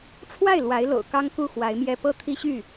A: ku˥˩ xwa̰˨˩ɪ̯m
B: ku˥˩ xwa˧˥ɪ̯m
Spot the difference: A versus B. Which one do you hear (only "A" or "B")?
B